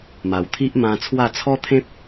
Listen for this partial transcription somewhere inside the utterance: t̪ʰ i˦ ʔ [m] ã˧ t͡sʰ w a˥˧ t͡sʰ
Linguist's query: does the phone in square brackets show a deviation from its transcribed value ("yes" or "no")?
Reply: no